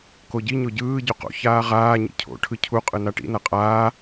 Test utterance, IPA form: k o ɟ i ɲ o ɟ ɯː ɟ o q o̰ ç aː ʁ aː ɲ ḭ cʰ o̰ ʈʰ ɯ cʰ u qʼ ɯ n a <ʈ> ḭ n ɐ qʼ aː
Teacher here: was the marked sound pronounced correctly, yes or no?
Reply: yes